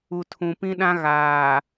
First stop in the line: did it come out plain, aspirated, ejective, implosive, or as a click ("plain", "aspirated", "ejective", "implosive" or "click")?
aspirated